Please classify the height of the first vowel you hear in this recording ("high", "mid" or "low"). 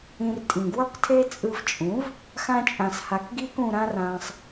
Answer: high